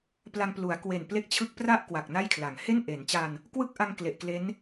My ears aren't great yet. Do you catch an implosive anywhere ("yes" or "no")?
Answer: no